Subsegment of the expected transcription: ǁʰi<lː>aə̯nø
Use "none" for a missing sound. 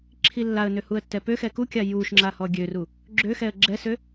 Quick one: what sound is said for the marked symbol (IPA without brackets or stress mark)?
lː